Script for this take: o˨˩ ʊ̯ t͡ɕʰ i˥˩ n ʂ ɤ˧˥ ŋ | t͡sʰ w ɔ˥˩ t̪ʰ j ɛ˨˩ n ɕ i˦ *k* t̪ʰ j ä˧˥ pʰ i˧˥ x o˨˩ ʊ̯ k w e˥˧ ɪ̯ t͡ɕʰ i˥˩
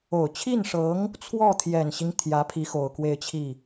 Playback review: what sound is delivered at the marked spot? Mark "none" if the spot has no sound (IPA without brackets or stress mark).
ŋ